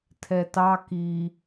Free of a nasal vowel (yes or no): yes